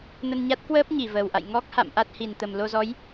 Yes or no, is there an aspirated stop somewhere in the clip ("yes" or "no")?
no